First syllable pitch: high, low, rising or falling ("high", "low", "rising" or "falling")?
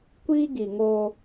high